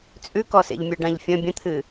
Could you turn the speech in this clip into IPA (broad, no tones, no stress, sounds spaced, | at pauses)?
t͡sʼ ʉ k ɔ s ḛ ʎ mʲ ə˞ ɖ ã ʎ fʲ ə̃ bʲ ə̃ t̪ʰ ɨ